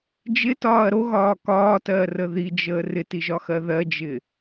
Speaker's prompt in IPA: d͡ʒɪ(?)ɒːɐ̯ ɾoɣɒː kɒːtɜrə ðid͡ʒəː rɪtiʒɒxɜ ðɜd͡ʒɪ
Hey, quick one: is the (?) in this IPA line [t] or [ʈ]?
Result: t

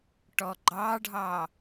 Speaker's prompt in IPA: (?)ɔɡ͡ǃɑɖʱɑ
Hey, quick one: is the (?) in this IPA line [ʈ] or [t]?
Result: ʈ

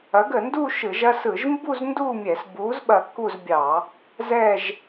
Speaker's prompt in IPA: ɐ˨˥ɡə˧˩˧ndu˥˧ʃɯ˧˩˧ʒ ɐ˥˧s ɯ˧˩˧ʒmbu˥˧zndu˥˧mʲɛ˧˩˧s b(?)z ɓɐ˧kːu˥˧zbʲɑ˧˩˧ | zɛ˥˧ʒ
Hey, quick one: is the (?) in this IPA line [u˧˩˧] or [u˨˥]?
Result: u˨˥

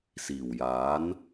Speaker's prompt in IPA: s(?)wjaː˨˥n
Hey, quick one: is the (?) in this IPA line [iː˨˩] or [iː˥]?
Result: iː˨˩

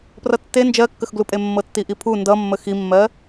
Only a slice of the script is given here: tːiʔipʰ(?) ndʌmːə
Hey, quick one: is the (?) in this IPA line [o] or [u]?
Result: u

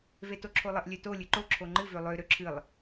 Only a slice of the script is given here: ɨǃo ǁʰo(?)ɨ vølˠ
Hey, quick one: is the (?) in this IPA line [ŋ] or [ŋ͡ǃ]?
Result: ŋ͡ǃ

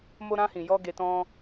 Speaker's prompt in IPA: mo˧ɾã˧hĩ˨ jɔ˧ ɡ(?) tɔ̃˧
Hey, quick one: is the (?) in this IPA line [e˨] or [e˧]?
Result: e˨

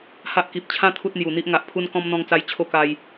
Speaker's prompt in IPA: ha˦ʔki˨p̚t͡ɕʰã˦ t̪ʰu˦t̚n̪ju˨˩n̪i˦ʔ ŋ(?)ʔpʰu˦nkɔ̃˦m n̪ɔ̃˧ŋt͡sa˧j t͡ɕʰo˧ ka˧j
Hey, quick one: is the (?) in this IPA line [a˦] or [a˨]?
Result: a˨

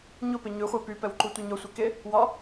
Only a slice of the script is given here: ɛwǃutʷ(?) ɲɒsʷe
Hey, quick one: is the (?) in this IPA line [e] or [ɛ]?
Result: e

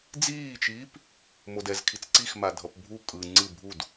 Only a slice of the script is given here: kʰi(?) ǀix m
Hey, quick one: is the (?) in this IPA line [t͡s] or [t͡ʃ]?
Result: t͡s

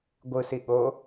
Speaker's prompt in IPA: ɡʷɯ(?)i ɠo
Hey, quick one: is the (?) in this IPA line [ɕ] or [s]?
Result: s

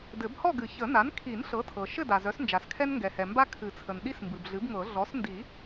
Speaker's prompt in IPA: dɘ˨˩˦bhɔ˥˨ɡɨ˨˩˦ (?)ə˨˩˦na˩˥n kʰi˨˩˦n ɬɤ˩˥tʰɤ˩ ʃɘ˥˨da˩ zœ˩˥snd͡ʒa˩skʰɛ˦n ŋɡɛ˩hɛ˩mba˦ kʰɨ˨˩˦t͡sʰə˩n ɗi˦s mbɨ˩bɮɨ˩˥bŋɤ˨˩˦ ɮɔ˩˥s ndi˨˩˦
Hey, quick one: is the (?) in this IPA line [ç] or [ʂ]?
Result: ç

